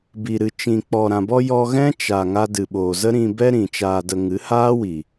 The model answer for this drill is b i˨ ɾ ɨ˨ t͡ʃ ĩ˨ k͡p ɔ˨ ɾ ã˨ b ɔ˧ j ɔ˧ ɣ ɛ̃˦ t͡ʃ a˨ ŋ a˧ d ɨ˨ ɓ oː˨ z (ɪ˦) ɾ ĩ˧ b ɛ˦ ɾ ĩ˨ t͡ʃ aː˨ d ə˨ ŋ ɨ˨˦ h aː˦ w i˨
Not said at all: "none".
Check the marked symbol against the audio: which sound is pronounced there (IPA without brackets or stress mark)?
ə˦